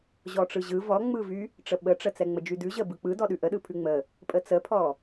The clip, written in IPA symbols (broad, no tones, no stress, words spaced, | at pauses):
ʑɔʈ͡ʂɯʑɯ vɔŋ͡mɯvy | ʈ͡ʂəɓəʈ͡ʂə t͡sɛŋ͡məd͡ʒydʉ ʑə bɯk͡pɯdɔɗʉ ʔəɗɯpʰʉ ŋ͡mə | pʼət͡səpʰɔ